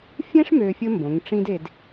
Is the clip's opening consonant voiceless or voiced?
voiceless